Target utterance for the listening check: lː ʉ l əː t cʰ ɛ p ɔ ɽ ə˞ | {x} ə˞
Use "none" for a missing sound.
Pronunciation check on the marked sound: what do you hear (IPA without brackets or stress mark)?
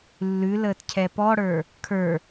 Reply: kʰ